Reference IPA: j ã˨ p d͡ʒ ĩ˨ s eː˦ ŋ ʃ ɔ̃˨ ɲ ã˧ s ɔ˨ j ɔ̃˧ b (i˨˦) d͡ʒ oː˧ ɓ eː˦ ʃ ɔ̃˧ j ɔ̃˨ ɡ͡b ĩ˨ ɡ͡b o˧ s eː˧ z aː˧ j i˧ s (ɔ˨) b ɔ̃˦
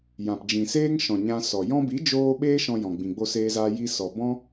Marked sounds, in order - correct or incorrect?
correct, correct

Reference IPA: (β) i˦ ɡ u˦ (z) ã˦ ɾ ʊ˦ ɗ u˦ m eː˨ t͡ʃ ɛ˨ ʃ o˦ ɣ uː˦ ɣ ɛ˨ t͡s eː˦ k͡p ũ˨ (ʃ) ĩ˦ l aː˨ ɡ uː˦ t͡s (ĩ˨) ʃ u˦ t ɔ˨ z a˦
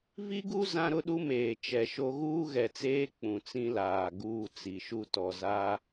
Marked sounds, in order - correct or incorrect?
incorrect: v, correct, incorrect: t͡s, incorrect: i˨

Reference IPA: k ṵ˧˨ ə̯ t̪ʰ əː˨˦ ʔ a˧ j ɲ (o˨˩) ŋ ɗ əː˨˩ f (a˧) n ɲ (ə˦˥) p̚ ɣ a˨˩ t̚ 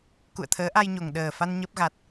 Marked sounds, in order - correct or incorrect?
correct, correct, correct

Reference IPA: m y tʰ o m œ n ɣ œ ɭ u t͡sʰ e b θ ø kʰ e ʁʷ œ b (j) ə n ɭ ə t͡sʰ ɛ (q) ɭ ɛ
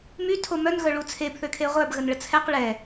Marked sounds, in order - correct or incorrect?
incorrect: ɣ, correct

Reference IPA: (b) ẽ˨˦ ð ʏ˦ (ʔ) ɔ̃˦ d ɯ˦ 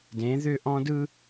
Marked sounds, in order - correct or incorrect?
incorrect: d, correct

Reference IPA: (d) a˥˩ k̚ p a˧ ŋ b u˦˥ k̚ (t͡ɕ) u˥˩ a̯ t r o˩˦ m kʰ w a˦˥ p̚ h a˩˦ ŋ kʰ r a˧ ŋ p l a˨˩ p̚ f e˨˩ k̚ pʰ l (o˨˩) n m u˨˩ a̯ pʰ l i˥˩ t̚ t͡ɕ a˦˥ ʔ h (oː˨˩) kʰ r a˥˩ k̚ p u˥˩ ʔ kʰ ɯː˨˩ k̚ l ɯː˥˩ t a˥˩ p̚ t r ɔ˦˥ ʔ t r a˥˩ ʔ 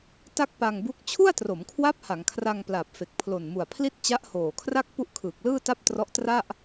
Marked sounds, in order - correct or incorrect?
incorrect: t, incorrect: t͡ɕʰ, correct, correct

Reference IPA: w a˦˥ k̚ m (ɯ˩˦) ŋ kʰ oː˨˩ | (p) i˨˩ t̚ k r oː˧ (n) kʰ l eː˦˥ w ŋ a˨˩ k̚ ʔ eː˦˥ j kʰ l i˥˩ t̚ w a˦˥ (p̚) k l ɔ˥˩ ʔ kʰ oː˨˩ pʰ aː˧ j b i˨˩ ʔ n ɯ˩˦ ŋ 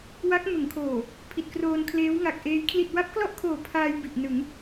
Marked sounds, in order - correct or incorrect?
correct, incorrect: pʰ, correct, correct

